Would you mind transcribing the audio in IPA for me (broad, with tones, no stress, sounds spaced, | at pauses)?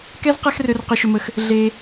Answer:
k ɛ˥ z q ɛ˥ x r ø˦ r q ʏ˦ ʃ ʏ˦ m ə˦ x | ɮ e˥